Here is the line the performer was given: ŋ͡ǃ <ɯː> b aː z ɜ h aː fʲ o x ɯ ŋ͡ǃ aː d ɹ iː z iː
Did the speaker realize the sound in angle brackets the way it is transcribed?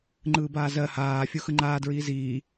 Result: yes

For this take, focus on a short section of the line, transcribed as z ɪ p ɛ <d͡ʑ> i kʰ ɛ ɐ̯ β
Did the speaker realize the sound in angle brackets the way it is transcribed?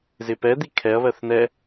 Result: no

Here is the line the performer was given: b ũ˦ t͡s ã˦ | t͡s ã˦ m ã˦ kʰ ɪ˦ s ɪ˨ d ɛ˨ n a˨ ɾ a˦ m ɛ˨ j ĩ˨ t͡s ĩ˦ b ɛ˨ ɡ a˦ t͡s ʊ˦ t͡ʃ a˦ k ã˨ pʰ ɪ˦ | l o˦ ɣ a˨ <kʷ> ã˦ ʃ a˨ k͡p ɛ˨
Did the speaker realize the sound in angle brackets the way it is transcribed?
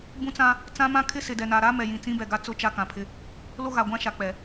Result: no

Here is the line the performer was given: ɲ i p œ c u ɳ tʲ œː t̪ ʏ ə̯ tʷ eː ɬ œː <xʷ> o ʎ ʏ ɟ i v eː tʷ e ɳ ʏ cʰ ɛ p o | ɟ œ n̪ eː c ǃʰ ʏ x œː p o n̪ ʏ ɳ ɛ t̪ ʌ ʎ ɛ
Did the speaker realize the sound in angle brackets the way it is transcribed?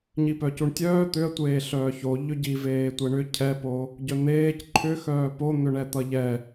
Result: no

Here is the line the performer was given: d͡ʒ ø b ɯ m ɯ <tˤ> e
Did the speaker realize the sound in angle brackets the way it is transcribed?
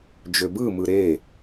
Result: no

